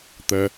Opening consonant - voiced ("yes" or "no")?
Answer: no